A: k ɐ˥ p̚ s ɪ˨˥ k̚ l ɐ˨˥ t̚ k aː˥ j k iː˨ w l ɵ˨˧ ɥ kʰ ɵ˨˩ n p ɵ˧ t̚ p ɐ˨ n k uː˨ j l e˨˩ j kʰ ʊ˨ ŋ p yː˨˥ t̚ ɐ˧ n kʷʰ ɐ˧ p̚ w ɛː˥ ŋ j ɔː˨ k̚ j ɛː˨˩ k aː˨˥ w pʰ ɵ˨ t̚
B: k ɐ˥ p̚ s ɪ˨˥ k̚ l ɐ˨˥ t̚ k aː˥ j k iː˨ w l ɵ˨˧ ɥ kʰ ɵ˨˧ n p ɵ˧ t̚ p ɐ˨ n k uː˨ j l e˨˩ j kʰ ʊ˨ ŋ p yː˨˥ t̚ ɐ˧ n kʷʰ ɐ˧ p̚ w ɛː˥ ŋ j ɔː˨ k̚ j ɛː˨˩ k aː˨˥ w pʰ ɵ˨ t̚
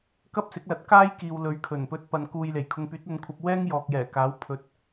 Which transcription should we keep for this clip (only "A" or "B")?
A